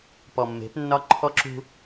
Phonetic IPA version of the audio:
p ɔ˨ mː e̤˨˦ p nː ɒ˦ ǃʰ ɔ˦ ǁ ṳ˦

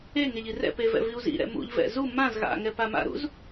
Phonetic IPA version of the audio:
e ŋ e ʎ i r ɛ̰ p e v ɛ̰ v i u̯ z ḭ ɾ ɛ̰ m ṵ ʎ v ɛ̰ z u m ã z ɣ a̰ ŋ ɛ p a m a̰ ɾ ṵ z

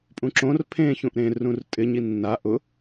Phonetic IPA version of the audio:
pʼ ũ ǁ õ r pʰ ẽ ç ũ ʔ ɾ ẽ r ũ r tʼ ɪ ɲ i nː a ʔ ʊ

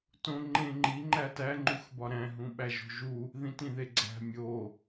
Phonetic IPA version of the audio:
t õ ŋ͡ǃ ẽ ŋ͡ǃ i ŋ͡ǃ æ t æ ŋ͡ǃ u x b ɒ ɾ æ̃ ɦ ũ ɓ æ ʒ o̤ ʒ u | ð ĩ t ĩ ð e ɡ͡ǀ æ̤ mʲ o

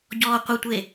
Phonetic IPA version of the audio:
ɟ ɔː qʷ ə tʷ e

